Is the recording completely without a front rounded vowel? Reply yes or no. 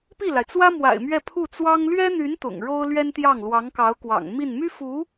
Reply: no